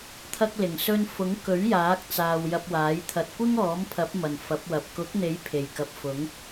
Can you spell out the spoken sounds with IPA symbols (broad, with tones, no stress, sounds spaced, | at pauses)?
t̪ʰ ɐ˧ k̚ l ɪ˨˩ ŋ s ɵ˧ n f ʊ˨˥ ŋ k ɵ˨˥ ɥ j aː˨˥ k̚ t͡s aː˧ w j ɐ˧ p̚ w aː˨˥ j t̪ʰ ɐ˨ t̚ kʷ ɪ˥ ŋ ɔː˨˥ m pʰ ɐ˨˥ p̚ m ɐ˨˩ n f ɐ˨˥ p̚ w ɐ˨ p̚ k ʊ˨˥ k̚ n̪ e˨˥ j pʰ e˨˩ j k ɐ˨˥ p̚ f ʊ˨˥ ŋ